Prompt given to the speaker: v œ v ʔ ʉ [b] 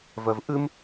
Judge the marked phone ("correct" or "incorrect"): incorrect